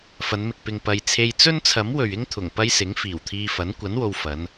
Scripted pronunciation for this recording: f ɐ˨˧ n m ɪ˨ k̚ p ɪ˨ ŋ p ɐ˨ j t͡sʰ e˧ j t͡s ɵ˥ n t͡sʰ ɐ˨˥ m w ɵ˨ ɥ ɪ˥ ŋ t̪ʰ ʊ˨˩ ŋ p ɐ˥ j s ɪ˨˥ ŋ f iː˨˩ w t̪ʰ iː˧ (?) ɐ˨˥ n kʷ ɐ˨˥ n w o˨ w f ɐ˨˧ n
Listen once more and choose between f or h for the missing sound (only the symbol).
f